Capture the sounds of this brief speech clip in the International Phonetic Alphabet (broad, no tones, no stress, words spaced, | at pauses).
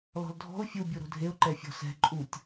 lɔ̤ldʱɔ̤ʊ̯ fʲu bʲuɾo̤dʱeʊ̯ ǃɛfʲɔ̤sɛ̤ ǃʼutʲ